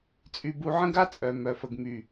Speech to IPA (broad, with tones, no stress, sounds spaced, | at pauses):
t͡sʼ y˧ b u˧ ʕ ə̃˦ ɡ a˦ t͡sʼ œ˨ m œ˨ f ə˨ ɡ m y˨